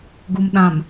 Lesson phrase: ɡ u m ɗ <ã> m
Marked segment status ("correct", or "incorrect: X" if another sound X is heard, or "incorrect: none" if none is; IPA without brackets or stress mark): correct